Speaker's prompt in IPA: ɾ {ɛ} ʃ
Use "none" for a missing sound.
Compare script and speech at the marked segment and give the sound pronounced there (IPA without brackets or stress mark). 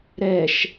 ɛ